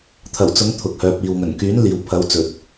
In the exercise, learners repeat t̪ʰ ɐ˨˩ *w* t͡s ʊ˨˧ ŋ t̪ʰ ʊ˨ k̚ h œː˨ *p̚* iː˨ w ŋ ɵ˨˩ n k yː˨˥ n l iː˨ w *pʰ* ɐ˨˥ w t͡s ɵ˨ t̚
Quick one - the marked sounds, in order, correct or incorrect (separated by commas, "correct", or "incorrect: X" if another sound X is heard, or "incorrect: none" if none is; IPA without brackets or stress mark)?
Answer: correct, correct, correct